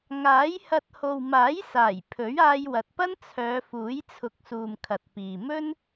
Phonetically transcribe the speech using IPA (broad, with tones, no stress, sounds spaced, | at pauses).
ŋ aː˨˥ j h ɐ˧ t̚ h o˨ w m aː˨˥ j s aː˨˩ j pʰ ɵ˨˥ ɥ aː˧ j w ɐ˨ t̚ p ɐ˥ n t͡sʰ œː˨˧ f uː˨˥ j t͡sʰ ʊ˨˥ k̚ s uː˨ m kʰ ɐ˨ t̚ p iː˨ m ɵ˥ n